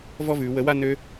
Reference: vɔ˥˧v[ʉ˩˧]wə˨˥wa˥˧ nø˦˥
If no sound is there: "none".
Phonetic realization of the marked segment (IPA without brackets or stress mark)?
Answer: ʉ˩˧